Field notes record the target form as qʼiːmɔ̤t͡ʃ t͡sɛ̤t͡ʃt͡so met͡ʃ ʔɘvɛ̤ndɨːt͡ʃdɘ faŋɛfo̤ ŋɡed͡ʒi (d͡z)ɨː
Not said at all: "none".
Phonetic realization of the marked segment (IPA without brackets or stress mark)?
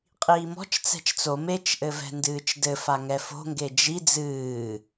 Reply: d͡z